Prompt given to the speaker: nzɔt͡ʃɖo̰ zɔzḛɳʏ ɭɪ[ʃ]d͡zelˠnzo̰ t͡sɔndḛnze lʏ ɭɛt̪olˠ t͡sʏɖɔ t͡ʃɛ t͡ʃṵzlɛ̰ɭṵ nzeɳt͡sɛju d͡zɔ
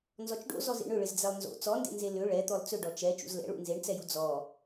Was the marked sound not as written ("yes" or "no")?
yes